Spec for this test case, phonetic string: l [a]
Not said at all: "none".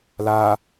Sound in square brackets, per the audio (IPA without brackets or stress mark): a